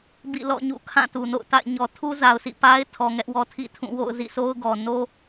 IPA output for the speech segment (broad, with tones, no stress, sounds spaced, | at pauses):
b ḭ˦˨ l ɔ̰˦˨ ɲ ṵ˦˨ kʰ ã˦˨ t u˨ n o̰˦˨ ʊ̯ t a̰˦˨ ɪ̯ ɲ ɔ˨ tʰ u˦ z a˨ ʊ̯ sʰ ḭ˦˨ p a˦ ɪ̯ tʰ ɔ˨ ŋ ɛ˦ ʔ w ɔ˦ tʰ ḭ˦˨ tʰ ũ˦˨ w o̰˦˨ ʊ̯ z ḭ˦˨ s o˦ ʊ̯ ɡ ɔ˨ n o˦